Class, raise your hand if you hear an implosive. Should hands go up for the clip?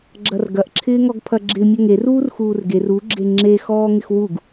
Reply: no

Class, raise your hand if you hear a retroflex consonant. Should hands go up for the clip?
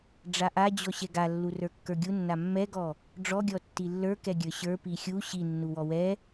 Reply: yes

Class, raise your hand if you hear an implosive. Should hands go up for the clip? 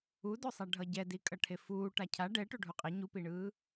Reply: no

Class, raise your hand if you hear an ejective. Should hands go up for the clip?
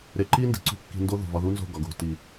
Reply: no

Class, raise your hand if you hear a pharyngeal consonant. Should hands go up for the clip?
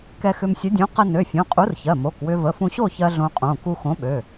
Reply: no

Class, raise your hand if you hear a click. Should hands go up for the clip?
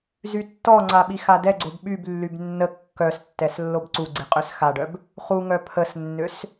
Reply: yes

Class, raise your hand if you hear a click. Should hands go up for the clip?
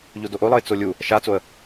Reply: no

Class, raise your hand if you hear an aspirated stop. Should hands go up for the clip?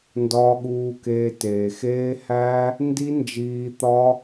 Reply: no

